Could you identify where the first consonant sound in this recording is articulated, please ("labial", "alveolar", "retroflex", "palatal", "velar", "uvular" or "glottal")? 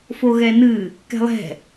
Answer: labial